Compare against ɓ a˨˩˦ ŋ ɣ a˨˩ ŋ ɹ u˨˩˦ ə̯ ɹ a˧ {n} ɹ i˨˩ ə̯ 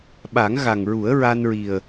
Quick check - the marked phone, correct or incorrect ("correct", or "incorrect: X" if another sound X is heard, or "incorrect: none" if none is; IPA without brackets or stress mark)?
correct